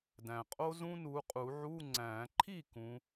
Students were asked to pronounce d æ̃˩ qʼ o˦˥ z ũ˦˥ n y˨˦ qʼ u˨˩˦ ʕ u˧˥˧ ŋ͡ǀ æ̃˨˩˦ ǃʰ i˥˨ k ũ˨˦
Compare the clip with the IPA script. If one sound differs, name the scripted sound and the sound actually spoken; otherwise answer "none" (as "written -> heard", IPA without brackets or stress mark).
y˨˦ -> u˨˦